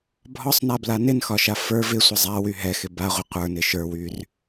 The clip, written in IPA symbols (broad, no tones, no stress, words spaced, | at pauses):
bʱɒsˤnabla nɪnxɒʃa fə˞v ɪsʷɪ zˤawy ɦɛxɪ baʁʷɪ qʷə˞nɪ ʃə˞wyr